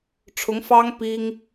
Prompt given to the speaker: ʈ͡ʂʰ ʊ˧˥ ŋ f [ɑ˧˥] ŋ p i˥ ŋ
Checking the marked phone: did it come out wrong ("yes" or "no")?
yes